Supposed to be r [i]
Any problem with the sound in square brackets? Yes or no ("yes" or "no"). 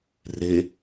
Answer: yes